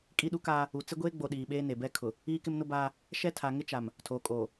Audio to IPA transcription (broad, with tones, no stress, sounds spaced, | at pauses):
kʼ i˦ ɗ u˦ k aː˦ | u˨ t͡s ɪ˦ ɡʷ eː˦ ɡ͡b o˨ ɗ iː˨ ɓ eː˦ n e˨ b ɛ˦ kʰ ʊ˨ | iː˦ k ɪ˦ m n ʊ˦ b aː˦ | ʃ ɛ˦ tʰ a˨ ŋ ɪ˦ t͡ʃ a˨ m | tʰ oː˨ kʼ oː˨